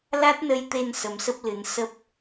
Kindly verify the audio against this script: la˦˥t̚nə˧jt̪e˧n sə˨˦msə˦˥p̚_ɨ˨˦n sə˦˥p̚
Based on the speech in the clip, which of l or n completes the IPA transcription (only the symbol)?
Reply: l